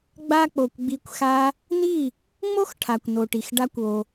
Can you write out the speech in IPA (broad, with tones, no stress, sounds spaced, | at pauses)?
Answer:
ɡ͡b a˧ k͡p o˨ kʷ ɡ͡b i˧ kʷ x a˦ | n̪ i˦˨ | ŋ͡m o˦ x ʈʰ a˨ kʷ n o˨ ʈ i˨ x ɖ a˦ kʷ o˧